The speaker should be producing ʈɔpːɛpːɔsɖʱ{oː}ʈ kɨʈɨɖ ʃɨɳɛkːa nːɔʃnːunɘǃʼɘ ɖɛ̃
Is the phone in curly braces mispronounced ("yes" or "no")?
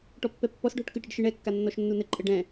yes